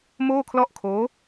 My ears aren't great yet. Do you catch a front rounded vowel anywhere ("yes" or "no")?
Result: no